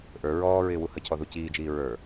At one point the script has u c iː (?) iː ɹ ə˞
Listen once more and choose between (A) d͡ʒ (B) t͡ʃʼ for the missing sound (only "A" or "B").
A